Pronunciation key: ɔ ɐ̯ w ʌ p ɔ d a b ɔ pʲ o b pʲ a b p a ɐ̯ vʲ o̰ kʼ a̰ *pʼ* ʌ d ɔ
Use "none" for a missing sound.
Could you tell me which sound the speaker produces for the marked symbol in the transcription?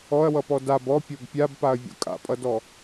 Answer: pʼ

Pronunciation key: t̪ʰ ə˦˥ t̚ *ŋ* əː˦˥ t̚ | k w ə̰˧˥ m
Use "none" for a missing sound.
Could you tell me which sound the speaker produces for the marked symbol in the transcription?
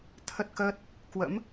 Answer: k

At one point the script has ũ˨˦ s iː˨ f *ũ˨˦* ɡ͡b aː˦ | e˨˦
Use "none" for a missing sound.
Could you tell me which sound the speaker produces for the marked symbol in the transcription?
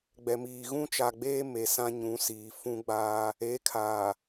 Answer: ũ˦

